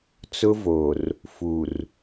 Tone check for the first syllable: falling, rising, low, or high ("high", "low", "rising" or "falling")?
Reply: high